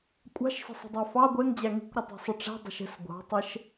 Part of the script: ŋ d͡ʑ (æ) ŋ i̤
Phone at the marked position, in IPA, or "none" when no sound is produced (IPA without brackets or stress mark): æ